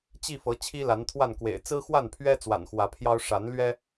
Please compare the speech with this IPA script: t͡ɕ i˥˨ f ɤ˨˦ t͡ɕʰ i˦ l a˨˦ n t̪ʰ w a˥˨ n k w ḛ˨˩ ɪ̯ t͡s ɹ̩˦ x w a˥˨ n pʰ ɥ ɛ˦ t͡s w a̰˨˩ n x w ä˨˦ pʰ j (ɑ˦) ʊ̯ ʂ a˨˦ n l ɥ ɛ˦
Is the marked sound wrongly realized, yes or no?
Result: no